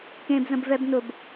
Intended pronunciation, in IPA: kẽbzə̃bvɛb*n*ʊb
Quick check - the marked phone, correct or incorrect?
correct